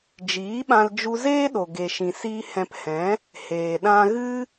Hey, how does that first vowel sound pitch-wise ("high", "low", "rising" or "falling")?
rising